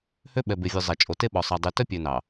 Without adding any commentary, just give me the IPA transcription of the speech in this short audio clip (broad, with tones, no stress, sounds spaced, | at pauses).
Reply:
h ø˦ ɓ ɛ˨ b e˨ vʲ ʉ˨ zˤ ɛ˨ t͡ʃʼ o˨ t e˦ ɓ ɔ˨ sˤ ɑ˨ dˤ y˨ t œ˦ pʲ ø˨ n ɑ˨